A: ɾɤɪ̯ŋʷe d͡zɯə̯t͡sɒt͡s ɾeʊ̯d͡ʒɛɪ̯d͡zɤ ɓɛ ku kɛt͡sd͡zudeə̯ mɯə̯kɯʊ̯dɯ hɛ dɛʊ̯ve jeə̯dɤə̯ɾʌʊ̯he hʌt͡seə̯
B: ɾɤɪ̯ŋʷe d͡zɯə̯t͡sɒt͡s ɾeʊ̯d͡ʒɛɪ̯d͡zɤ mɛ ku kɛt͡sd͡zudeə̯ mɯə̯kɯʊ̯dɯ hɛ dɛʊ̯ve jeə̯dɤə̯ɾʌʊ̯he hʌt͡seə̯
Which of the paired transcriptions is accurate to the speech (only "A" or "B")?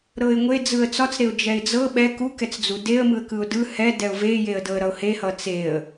A